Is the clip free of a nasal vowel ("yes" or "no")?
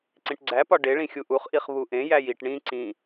no